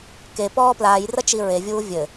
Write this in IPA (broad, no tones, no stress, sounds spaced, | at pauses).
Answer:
k e p ɔː p l aː j r ɐ t͡ʃ i ɹ e vʲ uː vʲ ɘ